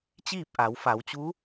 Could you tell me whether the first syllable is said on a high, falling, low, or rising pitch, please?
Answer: falling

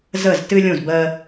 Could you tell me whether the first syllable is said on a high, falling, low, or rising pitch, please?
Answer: falling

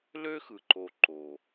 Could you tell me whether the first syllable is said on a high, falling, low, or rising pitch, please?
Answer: high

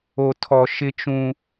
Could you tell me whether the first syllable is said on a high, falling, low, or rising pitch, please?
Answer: low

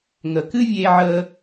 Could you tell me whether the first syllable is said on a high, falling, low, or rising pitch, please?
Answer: low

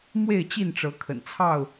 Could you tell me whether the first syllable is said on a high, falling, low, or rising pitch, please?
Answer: falling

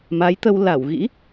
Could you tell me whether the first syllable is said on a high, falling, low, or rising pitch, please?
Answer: rising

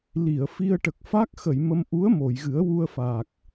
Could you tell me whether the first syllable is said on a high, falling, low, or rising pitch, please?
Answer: low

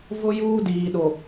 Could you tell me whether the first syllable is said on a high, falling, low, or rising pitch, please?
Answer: high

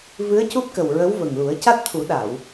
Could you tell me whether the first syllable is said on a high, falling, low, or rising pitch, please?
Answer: rising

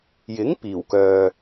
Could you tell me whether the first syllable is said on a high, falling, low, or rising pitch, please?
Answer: rising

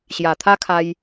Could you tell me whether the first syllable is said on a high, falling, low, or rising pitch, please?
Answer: low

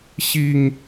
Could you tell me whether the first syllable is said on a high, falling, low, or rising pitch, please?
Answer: low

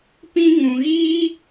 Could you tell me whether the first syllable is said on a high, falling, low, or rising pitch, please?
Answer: high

